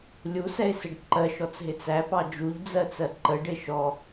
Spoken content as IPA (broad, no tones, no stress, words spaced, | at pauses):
lʲusɛɪ̯sɪɖ ǃɜʃɔt͡sɦɪ t͡sæpɑ d͡ʒuʎd͡zɜt͡sɜ ǃəɖɪ ʃɔ